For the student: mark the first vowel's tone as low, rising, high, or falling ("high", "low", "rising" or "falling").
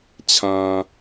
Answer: low